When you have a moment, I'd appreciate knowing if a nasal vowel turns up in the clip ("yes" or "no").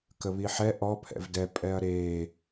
no